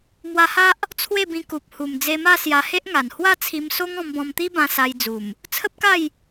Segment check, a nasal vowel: present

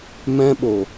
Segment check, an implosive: present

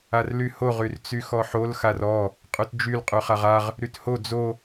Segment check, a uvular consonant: present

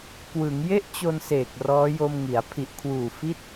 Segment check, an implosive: absent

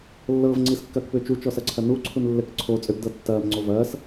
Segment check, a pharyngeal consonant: absent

